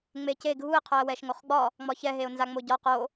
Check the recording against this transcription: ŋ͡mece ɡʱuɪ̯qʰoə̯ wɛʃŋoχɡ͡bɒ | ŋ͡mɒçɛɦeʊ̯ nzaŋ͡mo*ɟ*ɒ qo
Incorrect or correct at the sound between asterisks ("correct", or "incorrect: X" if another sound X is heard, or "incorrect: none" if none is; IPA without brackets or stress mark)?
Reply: correct